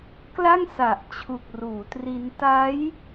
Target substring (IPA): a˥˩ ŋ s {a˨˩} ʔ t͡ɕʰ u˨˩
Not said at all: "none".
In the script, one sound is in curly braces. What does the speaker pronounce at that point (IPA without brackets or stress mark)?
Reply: a˨˩